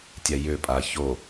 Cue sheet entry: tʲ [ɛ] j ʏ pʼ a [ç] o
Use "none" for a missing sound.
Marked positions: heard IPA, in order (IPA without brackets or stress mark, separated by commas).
ɛ, ç